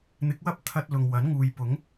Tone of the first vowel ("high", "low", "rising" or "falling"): rising